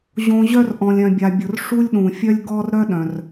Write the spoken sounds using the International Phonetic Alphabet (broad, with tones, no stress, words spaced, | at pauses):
ʑõ˧ ʑœ˥r ʔɔ̃˧lʲ œ̃˧bʲa˧bʲʊ˧r ʂu˥lʲɗũ˩fʲœ˥lʲ ɡɔ˥r ɾœ˥ɗœ̃˩r